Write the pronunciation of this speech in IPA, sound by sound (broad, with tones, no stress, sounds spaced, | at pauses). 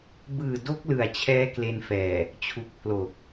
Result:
b ɯː˨˩ d o˦˥ k̚ l ɯ˨˩ a̯ t͡ɕʰ ɛː˦˥ k l e˧ n f ɛː˨˩ | t͡ɕʰ u˨˩ k̚ pʰ l o˨˩ k̚